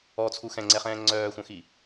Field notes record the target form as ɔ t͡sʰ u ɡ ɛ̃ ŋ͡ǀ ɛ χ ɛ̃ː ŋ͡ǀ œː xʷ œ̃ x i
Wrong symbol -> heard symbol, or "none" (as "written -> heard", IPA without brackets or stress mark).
ɡ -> x